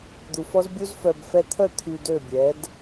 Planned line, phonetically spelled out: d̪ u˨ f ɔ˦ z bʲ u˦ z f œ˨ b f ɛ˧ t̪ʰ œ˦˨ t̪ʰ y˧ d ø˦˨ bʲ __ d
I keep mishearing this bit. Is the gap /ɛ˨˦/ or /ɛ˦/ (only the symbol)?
ɛ˨˦